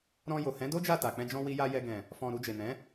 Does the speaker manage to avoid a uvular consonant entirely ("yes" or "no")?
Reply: yes